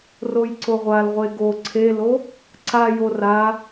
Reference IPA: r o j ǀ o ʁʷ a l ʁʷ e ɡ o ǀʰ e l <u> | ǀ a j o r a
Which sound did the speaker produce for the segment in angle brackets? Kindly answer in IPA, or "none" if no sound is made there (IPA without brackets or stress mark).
o